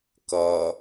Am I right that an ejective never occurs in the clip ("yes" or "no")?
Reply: yes